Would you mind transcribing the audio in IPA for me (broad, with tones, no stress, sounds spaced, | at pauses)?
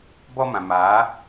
b ɔ˦ m ã˨ m aː˨˦